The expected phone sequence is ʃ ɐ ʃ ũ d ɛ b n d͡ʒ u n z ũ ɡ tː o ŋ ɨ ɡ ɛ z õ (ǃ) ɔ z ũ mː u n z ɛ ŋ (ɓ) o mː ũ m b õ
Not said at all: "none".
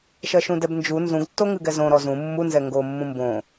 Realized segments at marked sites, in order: ɾ, ɡ

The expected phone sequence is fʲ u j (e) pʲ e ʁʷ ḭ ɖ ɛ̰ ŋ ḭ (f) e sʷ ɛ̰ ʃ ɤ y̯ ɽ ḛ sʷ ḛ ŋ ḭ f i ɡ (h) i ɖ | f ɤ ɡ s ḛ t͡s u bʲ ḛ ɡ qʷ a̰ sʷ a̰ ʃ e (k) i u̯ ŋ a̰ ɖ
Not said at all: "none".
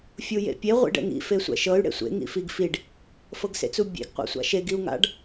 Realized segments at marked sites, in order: ḛ, f, f, ɡ

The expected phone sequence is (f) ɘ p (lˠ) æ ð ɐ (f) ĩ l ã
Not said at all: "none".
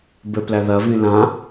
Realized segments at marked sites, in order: b, l, v

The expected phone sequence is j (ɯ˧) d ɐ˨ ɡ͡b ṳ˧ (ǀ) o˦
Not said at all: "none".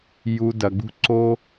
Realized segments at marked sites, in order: u˧, ǀ

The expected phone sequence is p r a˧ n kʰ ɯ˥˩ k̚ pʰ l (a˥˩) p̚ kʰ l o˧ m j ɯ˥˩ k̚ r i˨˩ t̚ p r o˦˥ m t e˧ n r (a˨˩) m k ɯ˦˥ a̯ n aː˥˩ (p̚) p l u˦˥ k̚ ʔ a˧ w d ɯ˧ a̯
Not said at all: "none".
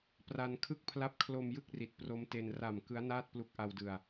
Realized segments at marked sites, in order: a˥˩, a˨˩, t̚

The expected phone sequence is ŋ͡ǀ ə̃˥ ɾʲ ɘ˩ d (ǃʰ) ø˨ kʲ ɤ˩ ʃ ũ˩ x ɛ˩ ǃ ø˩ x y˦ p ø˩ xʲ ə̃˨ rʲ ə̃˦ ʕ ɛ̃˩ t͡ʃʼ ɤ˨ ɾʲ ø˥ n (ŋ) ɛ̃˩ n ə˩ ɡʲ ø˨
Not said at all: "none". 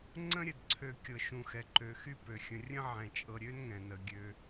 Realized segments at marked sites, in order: ǀʰ, ŋ

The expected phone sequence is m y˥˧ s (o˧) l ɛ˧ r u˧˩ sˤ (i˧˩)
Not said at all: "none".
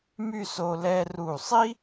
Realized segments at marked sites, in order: o˧, i˥

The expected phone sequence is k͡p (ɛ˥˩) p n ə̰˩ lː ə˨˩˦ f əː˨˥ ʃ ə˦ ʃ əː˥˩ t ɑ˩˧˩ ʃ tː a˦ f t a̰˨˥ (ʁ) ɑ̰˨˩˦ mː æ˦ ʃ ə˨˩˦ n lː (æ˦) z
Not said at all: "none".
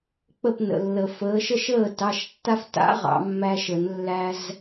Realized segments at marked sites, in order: ə˥˩, ʁ, æ˦

